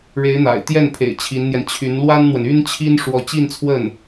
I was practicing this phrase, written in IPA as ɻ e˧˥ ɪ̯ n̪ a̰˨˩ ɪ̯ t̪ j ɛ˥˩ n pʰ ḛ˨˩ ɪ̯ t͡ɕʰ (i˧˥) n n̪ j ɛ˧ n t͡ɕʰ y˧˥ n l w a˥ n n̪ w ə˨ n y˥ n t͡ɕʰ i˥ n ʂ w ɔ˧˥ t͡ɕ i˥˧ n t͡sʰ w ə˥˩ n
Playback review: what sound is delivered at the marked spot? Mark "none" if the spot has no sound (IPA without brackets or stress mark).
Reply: i˧˥